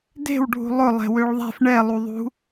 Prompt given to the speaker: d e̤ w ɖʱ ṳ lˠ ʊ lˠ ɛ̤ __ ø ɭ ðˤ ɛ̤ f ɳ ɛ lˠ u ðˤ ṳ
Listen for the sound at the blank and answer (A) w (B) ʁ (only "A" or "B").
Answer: A